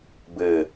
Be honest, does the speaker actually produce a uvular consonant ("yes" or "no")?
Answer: no